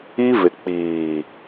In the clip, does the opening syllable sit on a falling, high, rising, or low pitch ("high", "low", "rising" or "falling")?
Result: high